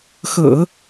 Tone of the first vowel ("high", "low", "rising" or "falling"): low